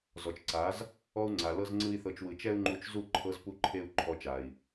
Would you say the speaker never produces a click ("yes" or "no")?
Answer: no